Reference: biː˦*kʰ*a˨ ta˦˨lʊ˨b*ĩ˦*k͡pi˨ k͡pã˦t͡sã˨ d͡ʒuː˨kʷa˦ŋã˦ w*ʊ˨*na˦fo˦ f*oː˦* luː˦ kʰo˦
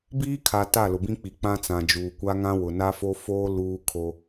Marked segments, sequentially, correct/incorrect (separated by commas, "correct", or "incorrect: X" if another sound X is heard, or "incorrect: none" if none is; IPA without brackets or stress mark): correct, correct, correct, correct